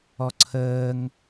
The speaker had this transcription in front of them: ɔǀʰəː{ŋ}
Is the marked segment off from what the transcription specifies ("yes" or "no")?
no